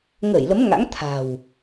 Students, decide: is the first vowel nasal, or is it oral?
oral